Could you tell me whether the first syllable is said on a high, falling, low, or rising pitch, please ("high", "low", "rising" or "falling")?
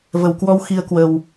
low